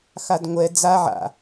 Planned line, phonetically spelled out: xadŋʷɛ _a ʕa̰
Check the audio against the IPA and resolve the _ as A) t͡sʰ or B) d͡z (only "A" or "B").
B